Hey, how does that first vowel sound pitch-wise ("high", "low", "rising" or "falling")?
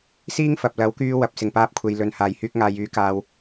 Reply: high